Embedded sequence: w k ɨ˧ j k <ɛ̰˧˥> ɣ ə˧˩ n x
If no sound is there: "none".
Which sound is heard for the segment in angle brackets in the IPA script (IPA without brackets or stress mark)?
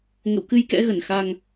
ɛ̰˧˥